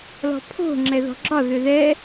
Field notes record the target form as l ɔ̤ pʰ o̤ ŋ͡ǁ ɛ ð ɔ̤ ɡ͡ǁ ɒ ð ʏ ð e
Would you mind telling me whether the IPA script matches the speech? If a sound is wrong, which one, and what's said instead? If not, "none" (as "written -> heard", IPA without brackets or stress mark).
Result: e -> ɛ